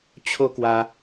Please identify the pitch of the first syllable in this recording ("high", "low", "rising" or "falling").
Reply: high